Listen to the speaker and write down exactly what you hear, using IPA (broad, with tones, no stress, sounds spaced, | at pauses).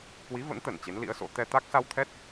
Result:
k w i˨˦ v ə̰˧˥ n t̪ ə˧˩ n t͡ɕ e˨˦ n l ḭ˧˥ ə̯ s o̰˧˥ t̪ ɛ˧ t̪ a˦˥ k̚ s a˧ w t̪ʰ ɛ˦˥ t̚